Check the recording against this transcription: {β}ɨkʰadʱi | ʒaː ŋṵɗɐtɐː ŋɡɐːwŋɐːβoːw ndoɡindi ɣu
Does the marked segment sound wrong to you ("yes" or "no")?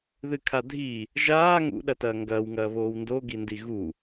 yes